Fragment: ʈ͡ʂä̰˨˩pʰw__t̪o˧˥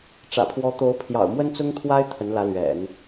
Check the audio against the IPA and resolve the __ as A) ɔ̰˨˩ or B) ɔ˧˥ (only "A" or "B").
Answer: B